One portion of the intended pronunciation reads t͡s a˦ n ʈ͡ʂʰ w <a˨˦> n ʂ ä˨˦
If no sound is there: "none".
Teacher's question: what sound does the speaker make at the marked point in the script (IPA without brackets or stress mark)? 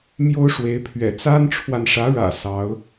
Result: a˨